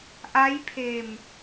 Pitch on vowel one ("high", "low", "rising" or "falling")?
rising